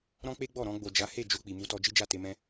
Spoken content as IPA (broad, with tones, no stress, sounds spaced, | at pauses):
ɾ ɔ̃˦ k͡p e˦ ɡ͡b ɔ˦˨ ɾ ɔ̃˧ ɡ͡b o˨ d͡ʒ a˨˦ h e˦˨ d͡ʒ o˧ k͡p i˨ m u˧ t ɔ˧ d͡ʒ i˦ d͡ʒ a˦˨ t e˧ m ɛ̃˦